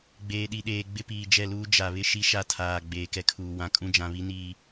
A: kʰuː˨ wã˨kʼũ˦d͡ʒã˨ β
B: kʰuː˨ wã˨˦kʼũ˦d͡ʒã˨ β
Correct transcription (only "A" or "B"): A